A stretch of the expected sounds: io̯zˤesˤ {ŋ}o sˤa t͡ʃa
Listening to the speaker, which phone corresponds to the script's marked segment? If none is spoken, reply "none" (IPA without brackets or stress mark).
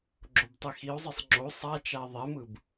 ŋ͡ǁ